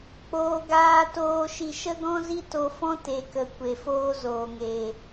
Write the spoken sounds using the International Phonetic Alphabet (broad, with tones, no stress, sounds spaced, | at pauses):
k͡p oː˨ ɡ aː˨ t oː˨ ʃ i˨ ʃ ə˦ ɡ ɔ̃˦ z i˦ t o˧ f ɔ̃˦ t e˨ k ə˨ kʷ e˨ f oː˦ z oː˨ ŋ eː˨